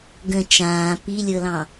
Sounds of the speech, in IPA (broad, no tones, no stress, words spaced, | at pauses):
ɡə̃ t͡ʃãː pilʲɤlɑ̃